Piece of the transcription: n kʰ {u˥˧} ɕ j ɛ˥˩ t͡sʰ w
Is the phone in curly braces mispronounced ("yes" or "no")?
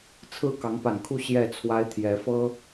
no